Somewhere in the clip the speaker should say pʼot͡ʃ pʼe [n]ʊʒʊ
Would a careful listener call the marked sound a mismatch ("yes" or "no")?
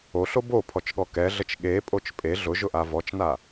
yes